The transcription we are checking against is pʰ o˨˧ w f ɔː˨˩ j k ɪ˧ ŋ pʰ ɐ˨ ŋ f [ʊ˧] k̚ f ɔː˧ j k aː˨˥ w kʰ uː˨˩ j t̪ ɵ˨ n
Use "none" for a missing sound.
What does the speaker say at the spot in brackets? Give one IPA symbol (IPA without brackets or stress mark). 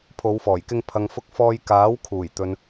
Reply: ʊ˧